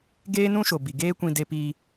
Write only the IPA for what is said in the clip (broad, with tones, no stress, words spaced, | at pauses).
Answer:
ɡeː˦nũ˦ʃo˨ bi˨ ɡeː˦ kʷĩ˦ de˦piː˦